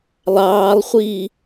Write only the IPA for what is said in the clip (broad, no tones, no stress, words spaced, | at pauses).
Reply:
lˠɑːlˠχʷiː